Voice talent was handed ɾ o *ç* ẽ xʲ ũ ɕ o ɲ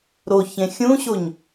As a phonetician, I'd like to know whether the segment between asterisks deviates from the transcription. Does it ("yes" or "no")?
no